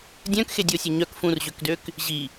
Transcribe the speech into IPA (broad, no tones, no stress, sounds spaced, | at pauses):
dʲ œ̃ k x e dʲ o sʲ ɐ ɲ œ k f ũ r ʑ ø k d ø k | ʑ i